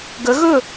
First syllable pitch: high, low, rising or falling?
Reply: rising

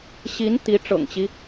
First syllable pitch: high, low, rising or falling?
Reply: rising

